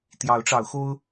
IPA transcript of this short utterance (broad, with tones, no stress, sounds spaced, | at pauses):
t̪ j ɑ˨˦ ʊ̯ ʈ͡ʂ ɑ˨˦ ʊ̯ x o˦ ʊ̯